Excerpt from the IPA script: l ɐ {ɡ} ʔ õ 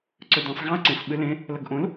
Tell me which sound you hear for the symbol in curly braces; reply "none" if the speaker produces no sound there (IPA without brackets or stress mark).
ɡ